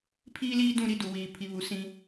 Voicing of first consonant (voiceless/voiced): voiceless